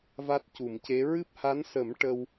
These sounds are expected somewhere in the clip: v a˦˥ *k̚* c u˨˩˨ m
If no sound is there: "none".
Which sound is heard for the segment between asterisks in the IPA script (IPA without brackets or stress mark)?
t̚